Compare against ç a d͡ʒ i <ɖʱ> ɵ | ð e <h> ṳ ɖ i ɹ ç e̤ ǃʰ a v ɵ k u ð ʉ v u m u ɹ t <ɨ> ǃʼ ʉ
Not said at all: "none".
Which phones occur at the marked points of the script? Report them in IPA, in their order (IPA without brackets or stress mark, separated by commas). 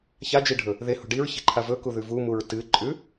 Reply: ɖʱ, h, ɨ